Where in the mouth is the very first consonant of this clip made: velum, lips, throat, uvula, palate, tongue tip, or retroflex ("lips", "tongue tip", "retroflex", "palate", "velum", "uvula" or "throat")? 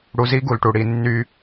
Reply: retroflex